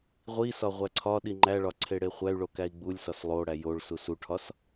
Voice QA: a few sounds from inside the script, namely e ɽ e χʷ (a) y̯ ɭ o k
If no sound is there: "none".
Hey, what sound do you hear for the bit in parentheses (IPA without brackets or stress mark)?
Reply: æ